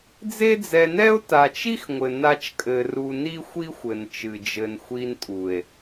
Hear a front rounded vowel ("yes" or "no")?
no